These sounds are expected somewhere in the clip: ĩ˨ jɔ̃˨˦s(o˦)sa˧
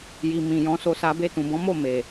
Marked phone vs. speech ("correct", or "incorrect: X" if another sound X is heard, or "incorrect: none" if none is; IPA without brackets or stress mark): incorrect: o˧